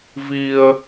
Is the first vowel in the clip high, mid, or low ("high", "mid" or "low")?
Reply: high